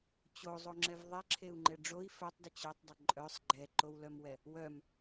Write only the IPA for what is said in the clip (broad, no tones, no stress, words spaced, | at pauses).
t͡ɕozˤoŋ͡ǁɛv ðˤɛǁʰeu̯ŋ͡ǃɛ ɖ͡ʐoi̯ fœtˤdə t͡ɕœtˤdˤə ǃʼœsˤ ɡ͡ǃɛǃowlœmwɛ | wœm